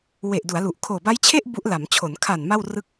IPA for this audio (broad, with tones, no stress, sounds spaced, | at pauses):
w e˨˩ ʔ d u˩˦ a̯ l u˨˩ ʔ kʰ oː˨˩ b a˦˥ j t͡ɕʰ e˥˩ ʔ b u˦˥ ʔ l a˩˦ m t͡ɕʰ o˩˦ n kʰ a˨˩ n m a˥˩ w r ɯ˥˩ k̚